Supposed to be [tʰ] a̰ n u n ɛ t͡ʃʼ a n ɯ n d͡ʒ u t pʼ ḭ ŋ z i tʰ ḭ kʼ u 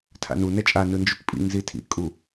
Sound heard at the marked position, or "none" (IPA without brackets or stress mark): tʰ